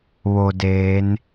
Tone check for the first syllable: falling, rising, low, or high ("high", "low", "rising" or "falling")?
low